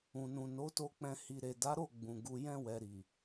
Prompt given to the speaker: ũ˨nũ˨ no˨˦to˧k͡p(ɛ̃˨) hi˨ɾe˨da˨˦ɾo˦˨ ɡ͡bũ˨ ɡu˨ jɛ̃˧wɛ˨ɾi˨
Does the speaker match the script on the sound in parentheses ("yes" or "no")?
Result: no